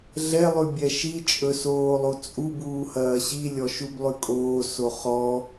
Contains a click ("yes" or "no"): no